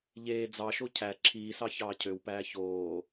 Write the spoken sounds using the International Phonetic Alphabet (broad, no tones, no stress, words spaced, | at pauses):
ʎeː d͡zɑʃo cʰæ ǁʰiːsɑ çɑːcʰøwpæː çoː